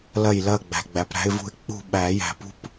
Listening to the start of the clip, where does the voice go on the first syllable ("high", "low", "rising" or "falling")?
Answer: falling